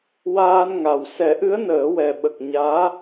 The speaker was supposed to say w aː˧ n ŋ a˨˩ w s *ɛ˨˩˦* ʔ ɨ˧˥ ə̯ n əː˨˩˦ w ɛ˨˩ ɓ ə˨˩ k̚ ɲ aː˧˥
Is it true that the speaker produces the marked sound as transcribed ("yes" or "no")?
yes